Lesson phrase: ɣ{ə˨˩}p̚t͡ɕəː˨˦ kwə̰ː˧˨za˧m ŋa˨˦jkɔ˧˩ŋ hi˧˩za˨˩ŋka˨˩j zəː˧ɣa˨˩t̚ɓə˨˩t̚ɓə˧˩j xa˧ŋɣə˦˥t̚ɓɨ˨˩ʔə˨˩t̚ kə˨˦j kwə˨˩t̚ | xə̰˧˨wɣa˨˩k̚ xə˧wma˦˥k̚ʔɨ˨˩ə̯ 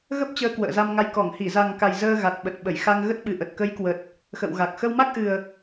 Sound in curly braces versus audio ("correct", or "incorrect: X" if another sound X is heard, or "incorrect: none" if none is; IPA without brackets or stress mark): incorrect: ə˦˥